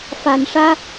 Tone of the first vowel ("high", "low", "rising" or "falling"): low